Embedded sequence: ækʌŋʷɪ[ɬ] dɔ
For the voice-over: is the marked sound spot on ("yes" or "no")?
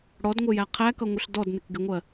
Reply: yes